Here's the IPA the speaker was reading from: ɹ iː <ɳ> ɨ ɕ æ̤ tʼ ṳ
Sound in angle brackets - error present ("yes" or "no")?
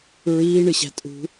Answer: no